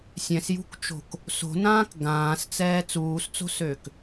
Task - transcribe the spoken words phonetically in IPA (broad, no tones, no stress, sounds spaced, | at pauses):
sʲ ɛ̃ s j ṳ k t͡ʃ o̤ k | s o̤ n ãː k ɡ ãː s t͡s ɛː t͡s uː s t͡s o̤ s øː k